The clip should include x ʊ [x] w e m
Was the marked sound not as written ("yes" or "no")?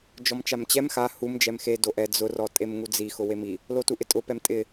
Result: yes